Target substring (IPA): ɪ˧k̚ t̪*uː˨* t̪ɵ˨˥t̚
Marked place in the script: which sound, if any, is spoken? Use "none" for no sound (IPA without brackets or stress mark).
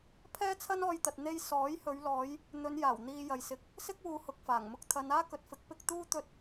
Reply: uː˥